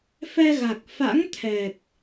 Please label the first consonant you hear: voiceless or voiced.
voiceless